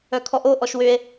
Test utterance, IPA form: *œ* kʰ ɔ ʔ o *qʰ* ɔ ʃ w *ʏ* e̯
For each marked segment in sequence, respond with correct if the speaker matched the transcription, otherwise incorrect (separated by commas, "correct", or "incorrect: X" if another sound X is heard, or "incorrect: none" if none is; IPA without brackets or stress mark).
correct, incorrect: ʔ, correct